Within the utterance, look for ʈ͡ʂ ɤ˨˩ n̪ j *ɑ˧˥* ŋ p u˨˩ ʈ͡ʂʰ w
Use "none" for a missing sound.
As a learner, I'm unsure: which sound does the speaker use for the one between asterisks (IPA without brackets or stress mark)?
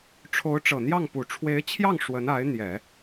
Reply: ɑ˥˩